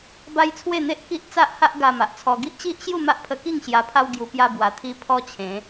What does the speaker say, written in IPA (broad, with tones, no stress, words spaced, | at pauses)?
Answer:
ba˦jt͡sʰwe˥˧n̪e˦ʔ ki˦ʔ t͡sa˦ʔha˦ʔ ɡa˧ma˨ʔt͡sʰɔ˧ ɡi˦ʔt͡ɕi˦ʔɕju˥˧ ma˦ʔpʰə˧ki˥˧ŋ ɕja˧pʰa˦wɡju˧ pja˧bwa˨˩ t̪ʰi˧ pʰɔ˦t͡ɕʰẽ˨˦